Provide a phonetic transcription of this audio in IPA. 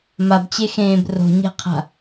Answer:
m a b t͡ɕ e x ẽː b r o̤ ɲ ɛ̤ qʰ a̤

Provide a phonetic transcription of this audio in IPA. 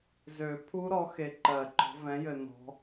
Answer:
z ø˨˩˦ pʰ u˦˥ ɾ ɔ˨˦ x e˨ ǃ ɜ˨˩˦ ǃ ɔ̤˨˦ v ɛ̃˨˦ j ɘ˨ n ɔ̤˨˦

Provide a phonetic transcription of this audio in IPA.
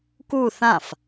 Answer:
k u θ ã f

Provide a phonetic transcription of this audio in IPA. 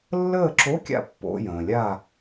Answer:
lː əː˥˨ ǁ o˧˥˧ kʲ a̰˥˨ pː o̰˧˥˧ j ə̃ː˩ lʲ a˥˨

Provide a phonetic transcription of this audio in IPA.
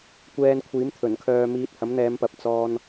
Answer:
kʷ ɛː˧ n kʷʰ iː˨˥ m t̪ʰ ɵ˨˩ n kʰ œː˧ m iː˧ t̚ h ɐ˨˥ m n̪ ɛː˨˧ m p ɐ˨˥ p̚ t͡s ɔː˧ n

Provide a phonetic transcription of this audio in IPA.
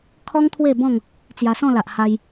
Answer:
kʰ ɔ˦ ŋ t̪ʰ w e˥˧ b ɔ̃˥˧ ŋ | t͡s j a˧ s ɔ̃˥˧ l a˨ ʔ h a˧ j

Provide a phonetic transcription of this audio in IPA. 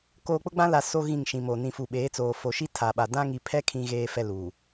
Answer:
k oː˨ k͡p ʊ˦ ɡ͡b ã˦ l a˨ s o˦ ɣ ĩ˦˨ ŋ ʃ ĩ˨ m o˨ n ĩ˨ f u˨ ɓ eː˨˦ t͡s oː˨ f o˨ ʃ i˦ tʰ a˨ ɓ a˨ d ã˦ ŋ i˨ pʰ ɛ˦ kʰ ĩ˨ ɣ eː˨ f ɛ˨ l u˨

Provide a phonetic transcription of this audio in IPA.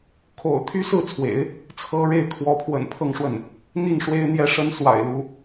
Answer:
kʰ o̰˨˩ ʊ̯ t̪ʰ y˥ s ɹ̩˥˩ t͡sʰ w ḛ˨˩˦ ɪ̯ | t͡sʰ ɤ˥ ɻ e˥˩ ɪ̯ kʰ w ɔ˧˥ pʰ w ə̰˨˩ n pʰ ɤ˥˧ ŋ ʂ w ə˥˩ n | n̪ i˥˩ n ʂ w e˥ ɪ̯ n̪ j ɛ˥ ʂ ə˥ n s w a̰˨˩ ɪ̯ l u˧˥

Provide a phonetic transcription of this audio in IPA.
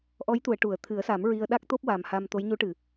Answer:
ʔ ɔ˧˥ j t̪ u˨˩˨ ə̯ ʈ u˨˩˨ ə̯ t̪ʰ ɨ˨˩˦ ə̯ s a˨˩˦ m ɹ i˧ ə̯ ɗ a˦˥ k̚ t̪ o˦˥ p̚ w a˨˩ m h a˧ m t̪ o˧˥ j ɲ u˧˥ ʈ ɨ˨˩˨

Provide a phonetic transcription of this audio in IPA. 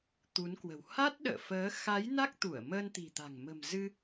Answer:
t̪ u˨˦ n k w ə̤˨˩ w h a˦˥ t̚ ɗ ə̰ː˧˨ f əː˨˦ x a˨˦ j n a˦˥ k̚ t̪ u˧˩ ə̯ m əː˧ n t̪ i̤˨˩ t̪ a̤˨˩ ŋ m ə̤˨˩ m z ɨ˧

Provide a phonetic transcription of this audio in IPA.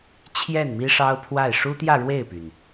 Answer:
t͡ɕʰ j ɛ˥˩ n m i˥ ʂ ɑ˥ ʊ̯ pʰ w a˥˩ ɪ̯ ʂ u˥ t̪ j ä˥˧ ɻ w e˥˩ ɪ̯ p y˩ n

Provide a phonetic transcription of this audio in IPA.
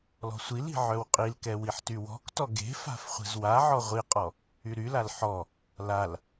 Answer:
l ɔ̤ sʷ i l i̤ ʕ œ w qʼ i l k ɛ w i ħ t y w ɔ̤ k t ɔ ɡ e̤ f a̤ f χʷ e̤ z w a ʕ ɔ ʁʷ i qʼ ɔ | y ɾ y l a l ħ ɔ | l a l

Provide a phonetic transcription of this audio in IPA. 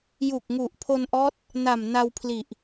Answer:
j u˨˩ k̚ ŋ u˨˩ ʔ pʰ o˧ n ʔ ɔː˦˥ t̚ | n a˨˩ m n a˧ w pʰ l i˨˩ ʔ

